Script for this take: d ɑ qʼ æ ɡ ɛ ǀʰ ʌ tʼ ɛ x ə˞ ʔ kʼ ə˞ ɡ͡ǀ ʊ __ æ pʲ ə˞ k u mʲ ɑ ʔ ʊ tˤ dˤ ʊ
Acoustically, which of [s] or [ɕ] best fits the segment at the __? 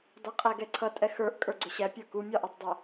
ɕ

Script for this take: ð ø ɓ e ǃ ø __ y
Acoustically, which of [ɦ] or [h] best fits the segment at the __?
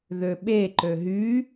ɦ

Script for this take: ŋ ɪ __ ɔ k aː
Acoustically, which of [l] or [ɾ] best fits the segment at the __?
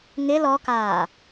l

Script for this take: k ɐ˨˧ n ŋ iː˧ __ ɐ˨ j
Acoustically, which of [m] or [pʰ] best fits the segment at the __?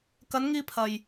pʰ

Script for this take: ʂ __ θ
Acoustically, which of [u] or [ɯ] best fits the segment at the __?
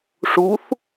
u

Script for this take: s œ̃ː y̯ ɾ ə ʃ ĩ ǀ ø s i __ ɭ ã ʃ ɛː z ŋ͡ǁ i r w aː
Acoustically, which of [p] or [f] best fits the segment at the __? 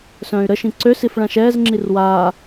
f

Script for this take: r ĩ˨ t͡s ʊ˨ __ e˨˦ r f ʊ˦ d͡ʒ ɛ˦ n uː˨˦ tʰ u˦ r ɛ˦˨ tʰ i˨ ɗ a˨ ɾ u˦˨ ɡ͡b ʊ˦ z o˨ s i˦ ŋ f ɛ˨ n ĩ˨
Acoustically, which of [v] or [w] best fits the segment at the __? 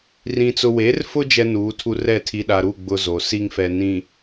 w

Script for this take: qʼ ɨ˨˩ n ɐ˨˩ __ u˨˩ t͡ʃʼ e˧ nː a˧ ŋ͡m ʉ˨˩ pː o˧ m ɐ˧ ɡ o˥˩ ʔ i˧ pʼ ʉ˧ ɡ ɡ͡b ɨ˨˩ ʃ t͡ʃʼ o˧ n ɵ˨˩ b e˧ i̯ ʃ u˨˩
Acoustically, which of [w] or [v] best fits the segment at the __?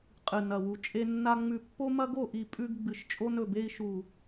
w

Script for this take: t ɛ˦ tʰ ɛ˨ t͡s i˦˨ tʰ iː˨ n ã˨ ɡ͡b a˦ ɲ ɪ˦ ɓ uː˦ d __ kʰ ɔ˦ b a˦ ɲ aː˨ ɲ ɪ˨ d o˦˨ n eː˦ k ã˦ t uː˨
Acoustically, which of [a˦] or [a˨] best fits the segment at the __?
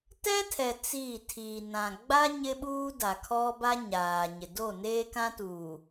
a˨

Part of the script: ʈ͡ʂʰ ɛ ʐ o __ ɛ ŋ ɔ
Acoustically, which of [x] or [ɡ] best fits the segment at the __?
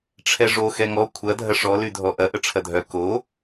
x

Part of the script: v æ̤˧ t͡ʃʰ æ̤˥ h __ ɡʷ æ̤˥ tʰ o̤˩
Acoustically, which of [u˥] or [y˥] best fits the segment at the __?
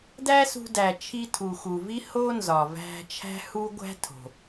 u˥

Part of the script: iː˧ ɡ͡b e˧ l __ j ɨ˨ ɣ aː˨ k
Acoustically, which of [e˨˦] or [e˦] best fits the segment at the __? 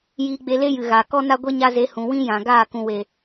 e˦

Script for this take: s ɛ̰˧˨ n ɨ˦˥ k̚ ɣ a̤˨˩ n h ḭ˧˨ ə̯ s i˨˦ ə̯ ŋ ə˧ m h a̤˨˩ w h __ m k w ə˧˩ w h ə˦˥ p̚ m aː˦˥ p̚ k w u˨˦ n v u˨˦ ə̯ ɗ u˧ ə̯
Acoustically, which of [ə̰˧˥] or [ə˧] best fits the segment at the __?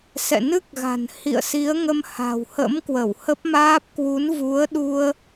ə̰˧˥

